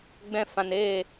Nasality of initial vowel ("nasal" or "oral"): nasal